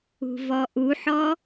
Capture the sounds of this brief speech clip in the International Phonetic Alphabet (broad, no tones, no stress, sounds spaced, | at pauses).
ṳ v ɔ ʔ u ħ ɔ